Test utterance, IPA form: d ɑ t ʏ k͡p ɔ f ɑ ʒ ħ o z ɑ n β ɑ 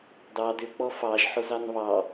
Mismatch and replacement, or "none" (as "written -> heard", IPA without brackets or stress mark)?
t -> d